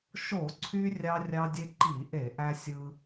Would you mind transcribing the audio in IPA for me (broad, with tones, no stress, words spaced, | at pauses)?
ʃo˧˩˧ǀʰy˧ rʲɑ˧ rʲɑ˧dʲe˧ ǃi˧˩˧ʔe˧˩˧ʔæ˧ sʲɯ˧